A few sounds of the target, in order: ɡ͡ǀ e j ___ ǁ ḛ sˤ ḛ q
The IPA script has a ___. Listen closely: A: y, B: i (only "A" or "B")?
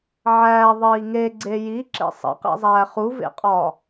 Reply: B